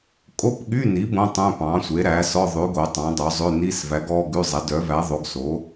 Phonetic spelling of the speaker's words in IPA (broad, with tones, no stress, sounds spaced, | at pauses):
kʼ o˧˥˧ p ɠ y˧˥˧ n i˩˥ b õ˧˥˧ tˤ œ̃˧˥˧ p ɑ̃˩˥ sʷ e˩˥ ɾ æ˩˥ s ɔ˧˥˧ ðˤ ʉ˩˥ ɡ o˩˥ tˤ ɑ̃˩˥ dˤ œ˩˥ zˤ ø˧˥˧ n i˧˥˧ s v æ˩˥ ɡ ɔ˧˥˧ ɡ ʉ˧˥˧ zˤ ɛ˩˥ d œ˩˥ v æ˩˥ ðˤ o˩˥ ɡ s o˩˥